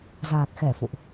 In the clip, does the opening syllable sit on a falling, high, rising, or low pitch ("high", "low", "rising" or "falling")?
low